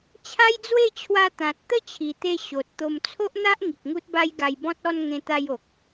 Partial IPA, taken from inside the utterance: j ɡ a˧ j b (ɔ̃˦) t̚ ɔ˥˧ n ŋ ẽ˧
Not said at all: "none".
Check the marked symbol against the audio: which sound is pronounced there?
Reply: ɔ̃˦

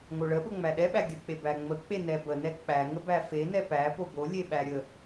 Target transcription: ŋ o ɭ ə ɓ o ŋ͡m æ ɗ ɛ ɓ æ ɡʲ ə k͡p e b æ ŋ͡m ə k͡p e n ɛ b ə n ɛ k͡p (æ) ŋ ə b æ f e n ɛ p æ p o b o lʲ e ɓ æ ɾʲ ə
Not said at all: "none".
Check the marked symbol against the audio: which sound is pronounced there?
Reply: æ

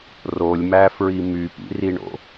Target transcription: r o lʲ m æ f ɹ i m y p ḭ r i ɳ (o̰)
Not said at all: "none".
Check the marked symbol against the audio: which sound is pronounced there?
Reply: o̰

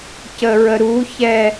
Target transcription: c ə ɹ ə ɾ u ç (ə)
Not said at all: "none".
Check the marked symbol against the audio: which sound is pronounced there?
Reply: ɛ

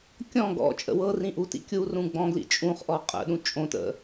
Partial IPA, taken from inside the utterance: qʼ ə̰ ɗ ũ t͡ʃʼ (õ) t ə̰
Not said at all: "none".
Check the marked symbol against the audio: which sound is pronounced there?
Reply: õ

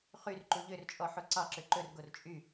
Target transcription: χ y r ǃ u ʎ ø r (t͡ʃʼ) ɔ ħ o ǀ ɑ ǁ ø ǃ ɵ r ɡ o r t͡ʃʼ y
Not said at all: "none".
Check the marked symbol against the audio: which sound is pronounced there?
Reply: t͡ʃʼ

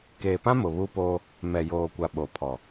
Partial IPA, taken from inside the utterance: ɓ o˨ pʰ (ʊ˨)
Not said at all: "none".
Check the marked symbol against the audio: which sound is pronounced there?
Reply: ɔ˨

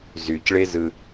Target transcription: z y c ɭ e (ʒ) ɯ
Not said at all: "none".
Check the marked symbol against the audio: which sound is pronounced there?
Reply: z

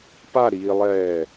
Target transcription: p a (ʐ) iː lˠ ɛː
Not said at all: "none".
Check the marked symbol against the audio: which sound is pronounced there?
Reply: ɾ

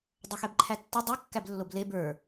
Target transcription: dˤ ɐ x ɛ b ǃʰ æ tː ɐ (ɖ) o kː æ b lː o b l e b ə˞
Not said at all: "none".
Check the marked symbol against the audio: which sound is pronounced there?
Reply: dˤ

